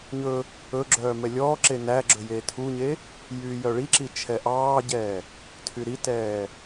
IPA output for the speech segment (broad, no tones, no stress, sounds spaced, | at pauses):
ɲ ɵ | ɵ ɡ͡ǁ œː m ɛ lʲ ɔː ǁ e n æ ɡ͡ǁ ɵ j eː tʰ u ɲ e | j yː j œ ɭ i ǁ i t͡ʃʰ ɛ ʔ ɑː ɟ ɛː | tʰ y ɾ i t ɛː